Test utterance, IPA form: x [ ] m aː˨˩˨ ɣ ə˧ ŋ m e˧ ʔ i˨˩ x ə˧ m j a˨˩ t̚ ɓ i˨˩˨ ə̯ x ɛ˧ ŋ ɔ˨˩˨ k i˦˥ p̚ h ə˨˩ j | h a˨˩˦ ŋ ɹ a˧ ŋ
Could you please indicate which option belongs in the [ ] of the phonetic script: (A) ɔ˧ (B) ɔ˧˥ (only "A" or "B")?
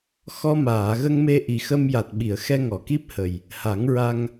A